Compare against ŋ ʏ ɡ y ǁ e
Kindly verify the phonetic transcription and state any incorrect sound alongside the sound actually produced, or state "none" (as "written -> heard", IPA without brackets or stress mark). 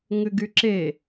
none